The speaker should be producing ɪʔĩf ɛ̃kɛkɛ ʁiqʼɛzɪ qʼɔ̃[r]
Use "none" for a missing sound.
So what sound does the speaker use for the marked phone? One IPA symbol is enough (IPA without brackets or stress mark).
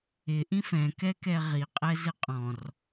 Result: r